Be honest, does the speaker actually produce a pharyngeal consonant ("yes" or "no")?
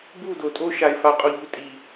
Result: no